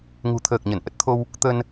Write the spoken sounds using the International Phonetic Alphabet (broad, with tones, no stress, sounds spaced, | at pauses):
ŋ ṳ˨˩ t̪ʰ əː˨˩ k̚ ɲ ə˧˩ n ʔ ə˦˥ t̚ t̪ʰ o˧ w | t̪ ə˧ n